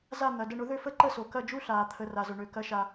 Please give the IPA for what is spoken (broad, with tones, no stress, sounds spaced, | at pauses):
z a˥˧ n̪ ɐ˩˧˩ d ə˥˧ ɳ ʊ˨˦ ð ø˥˧ f ə˥˧ ǃ ə˥˧ s o˩ k ɐ˥˧ d͡ʒ u˥˧ ɬ aː˩ t̪ʰ ə˩˧˩ r a˩ z ʊ˩ ɳ ø˩ k ɐ˨˦ ʃ a˩